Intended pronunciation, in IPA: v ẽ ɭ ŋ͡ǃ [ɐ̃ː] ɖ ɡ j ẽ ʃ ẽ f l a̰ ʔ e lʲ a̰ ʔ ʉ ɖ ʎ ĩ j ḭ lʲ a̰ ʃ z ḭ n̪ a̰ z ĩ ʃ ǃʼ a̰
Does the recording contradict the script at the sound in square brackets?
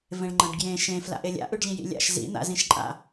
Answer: yes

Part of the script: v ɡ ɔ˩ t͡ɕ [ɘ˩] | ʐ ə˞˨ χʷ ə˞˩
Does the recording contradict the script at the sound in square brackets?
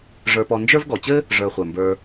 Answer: yes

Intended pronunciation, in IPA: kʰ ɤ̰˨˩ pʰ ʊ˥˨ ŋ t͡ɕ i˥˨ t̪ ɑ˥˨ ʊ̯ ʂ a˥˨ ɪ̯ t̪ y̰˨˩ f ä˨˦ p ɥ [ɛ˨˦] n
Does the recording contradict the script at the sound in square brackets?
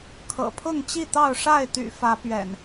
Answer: yes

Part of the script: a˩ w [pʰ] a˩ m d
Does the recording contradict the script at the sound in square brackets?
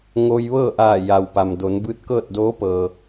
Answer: yes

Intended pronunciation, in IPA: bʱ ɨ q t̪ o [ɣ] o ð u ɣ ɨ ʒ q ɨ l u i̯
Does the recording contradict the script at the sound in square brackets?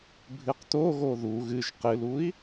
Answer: no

